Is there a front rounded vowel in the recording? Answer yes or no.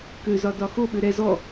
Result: yes